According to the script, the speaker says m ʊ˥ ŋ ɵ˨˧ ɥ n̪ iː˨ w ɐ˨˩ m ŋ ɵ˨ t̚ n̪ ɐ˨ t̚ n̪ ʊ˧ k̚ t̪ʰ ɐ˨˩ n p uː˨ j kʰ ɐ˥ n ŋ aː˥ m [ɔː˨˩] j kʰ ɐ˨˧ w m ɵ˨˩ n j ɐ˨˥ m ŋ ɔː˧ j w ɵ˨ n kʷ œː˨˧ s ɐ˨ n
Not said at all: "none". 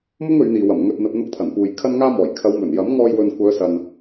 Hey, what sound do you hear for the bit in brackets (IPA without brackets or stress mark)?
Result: ɔː˨˩